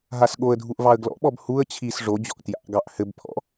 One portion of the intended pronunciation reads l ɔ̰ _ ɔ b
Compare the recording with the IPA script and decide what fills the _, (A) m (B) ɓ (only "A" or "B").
B